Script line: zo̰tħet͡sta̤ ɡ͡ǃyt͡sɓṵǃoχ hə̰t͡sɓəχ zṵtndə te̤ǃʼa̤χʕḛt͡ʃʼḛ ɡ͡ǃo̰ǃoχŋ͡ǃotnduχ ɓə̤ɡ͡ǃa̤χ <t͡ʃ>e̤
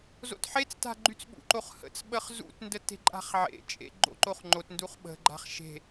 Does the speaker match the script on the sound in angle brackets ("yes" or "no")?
no